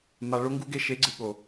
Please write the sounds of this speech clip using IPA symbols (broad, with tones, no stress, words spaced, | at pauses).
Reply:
ma˨ ɭo˦ŋɡu˦ɡe˧ʃe˨˦ ɡ͡ǀɨ˨ɠo˨